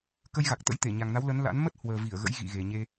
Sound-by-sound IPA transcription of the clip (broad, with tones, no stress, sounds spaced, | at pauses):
k ə˧ j ɣ a˨˩ k̚ t̪ ə̰˧˥ j t̪ e˧˩ ɲ a˨˩ ŋ n a˨˦ w l ə˨˦ n l a̰˧˥ n m ə˦˥ t̚ h w əː˨˩ v i˧˩ ə̯ ɣ ə̰˧˥ j ɣ ḭ˧˨ ɣ e˨˩ ɲ e˧